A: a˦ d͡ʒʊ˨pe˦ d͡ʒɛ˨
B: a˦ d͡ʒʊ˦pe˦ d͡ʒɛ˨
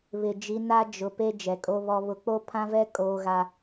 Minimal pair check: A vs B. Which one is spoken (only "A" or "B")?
A